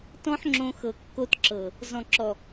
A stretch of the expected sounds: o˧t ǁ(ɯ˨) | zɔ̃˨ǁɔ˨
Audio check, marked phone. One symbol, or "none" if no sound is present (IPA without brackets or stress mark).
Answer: ɤ˨